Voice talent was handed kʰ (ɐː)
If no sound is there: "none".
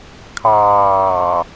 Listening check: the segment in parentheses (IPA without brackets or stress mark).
ɑː